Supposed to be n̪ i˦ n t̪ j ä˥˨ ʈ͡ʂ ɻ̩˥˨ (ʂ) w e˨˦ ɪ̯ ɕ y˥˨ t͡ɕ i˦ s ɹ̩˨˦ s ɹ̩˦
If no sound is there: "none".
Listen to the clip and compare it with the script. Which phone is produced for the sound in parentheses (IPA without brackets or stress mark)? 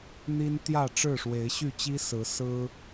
ʂ